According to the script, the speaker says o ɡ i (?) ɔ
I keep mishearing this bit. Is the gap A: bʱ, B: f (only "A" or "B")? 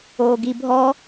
A